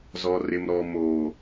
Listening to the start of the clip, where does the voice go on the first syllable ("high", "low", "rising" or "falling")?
low